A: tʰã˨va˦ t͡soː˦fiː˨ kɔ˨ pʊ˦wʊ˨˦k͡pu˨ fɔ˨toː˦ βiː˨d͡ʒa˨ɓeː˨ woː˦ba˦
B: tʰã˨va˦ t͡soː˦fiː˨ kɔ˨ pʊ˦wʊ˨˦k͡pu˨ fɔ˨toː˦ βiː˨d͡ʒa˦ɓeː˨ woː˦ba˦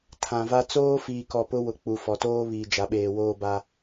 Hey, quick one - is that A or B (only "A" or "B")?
A